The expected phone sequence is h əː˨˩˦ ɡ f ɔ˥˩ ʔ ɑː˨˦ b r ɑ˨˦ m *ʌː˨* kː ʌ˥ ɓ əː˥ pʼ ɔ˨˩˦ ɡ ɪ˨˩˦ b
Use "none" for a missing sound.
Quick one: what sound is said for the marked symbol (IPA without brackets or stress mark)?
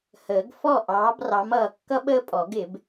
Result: ʌː˨